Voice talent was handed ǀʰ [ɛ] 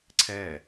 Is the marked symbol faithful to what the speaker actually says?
yes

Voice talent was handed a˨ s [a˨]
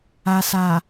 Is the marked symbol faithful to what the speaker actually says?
yes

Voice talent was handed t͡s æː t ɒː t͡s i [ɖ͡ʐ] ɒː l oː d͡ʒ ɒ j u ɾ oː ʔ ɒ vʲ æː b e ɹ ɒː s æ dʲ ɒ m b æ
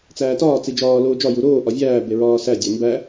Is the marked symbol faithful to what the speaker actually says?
no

